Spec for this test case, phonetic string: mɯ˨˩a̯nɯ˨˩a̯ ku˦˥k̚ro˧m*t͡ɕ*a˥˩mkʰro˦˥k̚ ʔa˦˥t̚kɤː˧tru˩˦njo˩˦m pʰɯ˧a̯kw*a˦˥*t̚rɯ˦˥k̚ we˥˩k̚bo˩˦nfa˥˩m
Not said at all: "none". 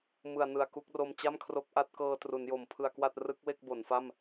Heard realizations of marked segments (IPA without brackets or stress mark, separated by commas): t͡ɕ, a˥˩